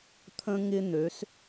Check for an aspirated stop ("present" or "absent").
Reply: present